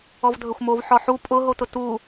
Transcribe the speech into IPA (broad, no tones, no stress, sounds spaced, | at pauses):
ɔ v dʱ ɵ xʷ m o v ħ ɔ ħ u pʼ ʊ ɦ o t ʊ t u